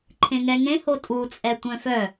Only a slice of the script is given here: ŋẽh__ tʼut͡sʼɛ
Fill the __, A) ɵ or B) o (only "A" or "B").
B